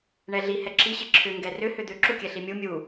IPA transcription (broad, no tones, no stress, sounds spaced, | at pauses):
ɳ ɛ ɮ i h ɛ ǁʰ i ɕ i ǁʰ ʏ ŋ ɡ ɛ r ʏ h ʏ d̪ ʏ ǁ u kʲ ɛ ɬ i mʲ u mʲ u